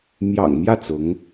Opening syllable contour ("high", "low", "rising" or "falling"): low